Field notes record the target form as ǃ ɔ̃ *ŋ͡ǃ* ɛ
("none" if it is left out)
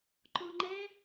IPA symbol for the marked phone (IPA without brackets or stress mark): ŋ͡ǃ